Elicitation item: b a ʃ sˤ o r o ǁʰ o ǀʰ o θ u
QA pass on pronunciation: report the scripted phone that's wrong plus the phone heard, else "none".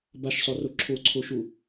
θ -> ʃ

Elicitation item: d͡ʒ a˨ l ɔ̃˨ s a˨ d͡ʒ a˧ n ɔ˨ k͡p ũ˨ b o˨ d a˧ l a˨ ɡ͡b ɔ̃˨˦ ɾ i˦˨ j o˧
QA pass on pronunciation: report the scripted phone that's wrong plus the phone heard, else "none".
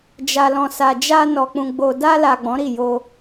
b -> ɡ͡b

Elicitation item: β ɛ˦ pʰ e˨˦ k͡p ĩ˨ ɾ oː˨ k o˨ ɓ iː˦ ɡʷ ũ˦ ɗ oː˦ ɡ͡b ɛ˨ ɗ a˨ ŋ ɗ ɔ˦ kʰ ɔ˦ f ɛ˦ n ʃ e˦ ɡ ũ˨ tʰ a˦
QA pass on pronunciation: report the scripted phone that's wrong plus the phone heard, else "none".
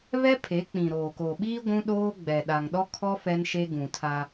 none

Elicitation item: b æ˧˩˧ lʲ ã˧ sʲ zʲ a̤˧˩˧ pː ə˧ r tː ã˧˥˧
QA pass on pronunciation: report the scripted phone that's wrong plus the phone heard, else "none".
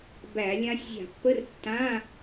ə˧ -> ə˧˥˧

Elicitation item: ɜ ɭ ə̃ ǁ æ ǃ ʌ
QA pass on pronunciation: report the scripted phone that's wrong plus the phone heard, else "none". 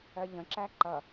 ɭ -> ʎ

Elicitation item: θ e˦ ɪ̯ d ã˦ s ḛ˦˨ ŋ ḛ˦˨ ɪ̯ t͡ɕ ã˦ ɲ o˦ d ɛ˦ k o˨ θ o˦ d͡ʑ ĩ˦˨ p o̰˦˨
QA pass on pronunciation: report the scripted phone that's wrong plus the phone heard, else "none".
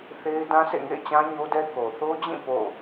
none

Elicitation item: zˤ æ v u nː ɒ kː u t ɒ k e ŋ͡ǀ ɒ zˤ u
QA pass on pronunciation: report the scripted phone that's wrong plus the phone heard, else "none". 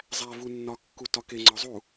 none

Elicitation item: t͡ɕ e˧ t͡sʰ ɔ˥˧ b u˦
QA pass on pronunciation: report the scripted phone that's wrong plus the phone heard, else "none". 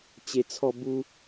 none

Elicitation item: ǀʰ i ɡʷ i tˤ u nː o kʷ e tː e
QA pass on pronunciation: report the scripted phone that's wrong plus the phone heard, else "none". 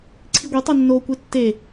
none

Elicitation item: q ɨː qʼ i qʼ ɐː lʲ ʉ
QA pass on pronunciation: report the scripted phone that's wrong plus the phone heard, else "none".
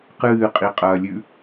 none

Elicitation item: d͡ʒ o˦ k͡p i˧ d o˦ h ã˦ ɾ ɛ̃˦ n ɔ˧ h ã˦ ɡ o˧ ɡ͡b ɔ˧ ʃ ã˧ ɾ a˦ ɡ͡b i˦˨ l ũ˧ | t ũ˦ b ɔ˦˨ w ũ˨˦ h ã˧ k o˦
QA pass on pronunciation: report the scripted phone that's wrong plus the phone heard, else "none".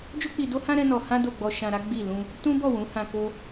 ɡ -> d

